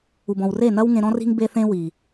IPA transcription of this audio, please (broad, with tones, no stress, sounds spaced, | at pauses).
u˨ b ɔ̃˨ w r e˦˨ n ɐ˦ w ŋ ẽ˧ ɾ ɔ̃˦ r i̤˦ ŋ b e˦ θ ẽ˦ w i˨